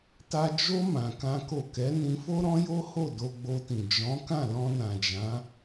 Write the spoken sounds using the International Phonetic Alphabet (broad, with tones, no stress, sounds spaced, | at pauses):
t a˦ d͡ʒ o˦ m ã˧ k ã˦ k o˦˨ k ɛ˨˦ n ĩ˧ f o˦ ɾ ɔ̃˦ j o˦ h o˦˨ d o˧ ɡ͡b o˧ t ĩ˨ d͡ʒ ɔ̃˨˦ k ã˦˨ l ɔ̃˧ n ã˨ d͡ʒ ã˨˦